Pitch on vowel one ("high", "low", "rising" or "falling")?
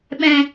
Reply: low